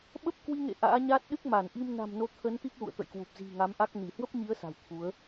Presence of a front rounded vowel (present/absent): absent